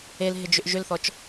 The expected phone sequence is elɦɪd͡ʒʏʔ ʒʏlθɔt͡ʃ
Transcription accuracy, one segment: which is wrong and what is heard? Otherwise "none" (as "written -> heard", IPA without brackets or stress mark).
none